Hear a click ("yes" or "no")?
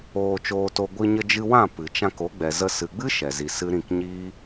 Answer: no